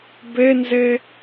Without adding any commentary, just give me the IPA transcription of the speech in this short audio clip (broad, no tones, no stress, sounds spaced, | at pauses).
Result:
b e n z e